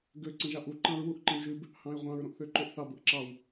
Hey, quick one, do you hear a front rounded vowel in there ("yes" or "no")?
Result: yes